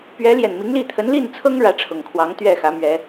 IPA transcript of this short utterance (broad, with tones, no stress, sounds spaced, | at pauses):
p ɥ ɛ˧˥ l j ɛ˨˩ n m i˧˥ ŋ l i˥˩ t̪ʰ ə˧˥ n l i˥˩ n t͡sʰ ɤ˥ ŋ ɻ ä˧˥ ʈ͡ʂʰ ʊ˨˩ ŋ kʰ w ɑ˧˥ ŋ t̪ ɥ ɛ˥˩ x ä˧˥ m ɥ ɛ˧˥